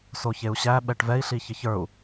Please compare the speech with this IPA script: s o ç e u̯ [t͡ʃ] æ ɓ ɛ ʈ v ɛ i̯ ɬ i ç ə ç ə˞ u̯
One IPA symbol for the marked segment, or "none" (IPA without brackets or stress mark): ɕ